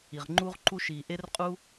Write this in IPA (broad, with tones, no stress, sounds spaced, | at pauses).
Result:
i˨˩ ʁ ŋ͡ǃ u˥ ʁ ǃ u˥ ʃ i˨˩ ʔ e˥ r qʼ u˥